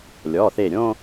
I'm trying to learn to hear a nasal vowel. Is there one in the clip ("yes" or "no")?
yes